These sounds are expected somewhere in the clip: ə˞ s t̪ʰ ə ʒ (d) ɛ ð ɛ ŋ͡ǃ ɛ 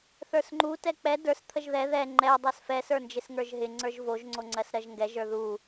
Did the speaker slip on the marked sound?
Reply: yes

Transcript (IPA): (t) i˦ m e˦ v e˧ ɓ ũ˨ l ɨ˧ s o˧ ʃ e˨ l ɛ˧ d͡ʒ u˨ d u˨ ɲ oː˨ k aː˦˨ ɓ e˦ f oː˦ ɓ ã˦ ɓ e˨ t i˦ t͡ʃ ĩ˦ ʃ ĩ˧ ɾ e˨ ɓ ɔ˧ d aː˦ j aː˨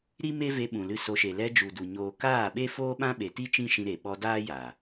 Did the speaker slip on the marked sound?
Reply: yes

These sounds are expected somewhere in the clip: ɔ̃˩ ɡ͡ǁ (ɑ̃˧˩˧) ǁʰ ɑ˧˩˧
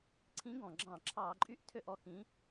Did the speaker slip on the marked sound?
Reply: no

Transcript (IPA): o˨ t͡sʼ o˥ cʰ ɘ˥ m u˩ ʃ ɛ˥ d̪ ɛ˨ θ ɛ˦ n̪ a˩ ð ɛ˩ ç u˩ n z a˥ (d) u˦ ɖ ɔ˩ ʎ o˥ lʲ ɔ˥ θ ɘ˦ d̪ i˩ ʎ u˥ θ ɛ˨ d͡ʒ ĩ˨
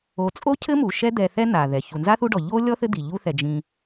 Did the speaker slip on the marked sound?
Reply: yes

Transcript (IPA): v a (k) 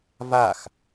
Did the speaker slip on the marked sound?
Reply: yes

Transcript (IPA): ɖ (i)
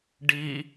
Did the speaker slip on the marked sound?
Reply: no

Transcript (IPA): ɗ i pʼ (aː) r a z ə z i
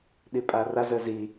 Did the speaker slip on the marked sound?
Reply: yes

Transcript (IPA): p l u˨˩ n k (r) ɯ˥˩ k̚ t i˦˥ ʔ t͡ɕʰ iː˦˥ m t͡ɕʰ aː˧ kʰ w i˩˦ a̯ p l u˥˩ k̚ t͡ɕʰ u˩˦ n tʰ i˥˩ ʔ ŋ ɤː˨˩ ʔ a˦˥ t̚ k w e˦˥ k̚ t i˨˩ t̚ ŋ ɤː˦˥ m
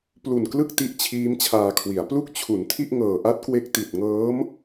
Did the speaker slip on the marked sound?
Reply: yes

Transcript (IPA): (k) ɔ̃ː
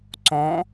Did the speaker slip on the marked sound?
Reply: yes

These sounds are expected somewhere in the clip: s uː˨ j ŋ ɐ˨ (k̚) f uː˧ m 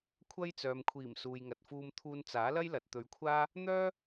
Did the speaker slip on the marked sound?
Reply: yes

